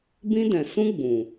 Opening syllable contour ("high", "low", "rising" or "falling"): high